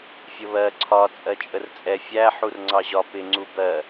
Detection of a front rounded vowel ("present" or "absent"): absent